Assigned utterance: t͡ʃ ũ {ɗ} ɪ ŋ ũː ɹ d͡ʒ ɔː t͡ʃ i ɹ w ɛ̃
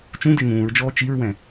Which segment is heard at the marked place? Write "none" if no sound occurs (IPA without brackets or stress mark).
d